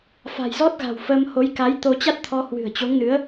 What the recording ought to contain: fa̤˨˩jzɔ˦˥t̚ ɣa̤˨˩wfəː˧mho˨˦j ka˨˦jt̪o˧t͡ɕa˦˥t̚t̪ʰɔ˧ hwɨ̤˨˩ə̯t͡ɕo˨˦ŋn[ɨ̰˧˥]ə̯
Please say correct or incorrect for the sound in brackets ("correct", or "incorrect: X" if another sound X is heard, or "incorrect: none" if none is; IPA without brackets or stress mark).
incorrect: ɨ˨˦